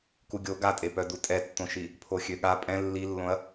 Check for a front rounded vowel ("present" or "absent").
present